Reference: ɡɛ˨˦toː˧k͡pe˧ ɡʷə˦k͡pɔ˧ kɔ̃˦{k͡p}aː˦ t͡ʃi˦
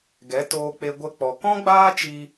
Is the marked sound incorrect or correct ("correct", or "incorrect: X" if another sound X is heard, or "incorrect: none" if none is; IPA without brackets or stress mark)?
incorrect: ɡ͡b